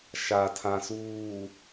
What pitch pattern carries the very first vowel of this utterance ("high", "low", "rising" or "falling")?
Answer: low